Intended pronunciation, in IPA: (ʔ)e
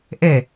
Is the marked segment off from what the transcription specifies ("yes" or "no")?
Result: no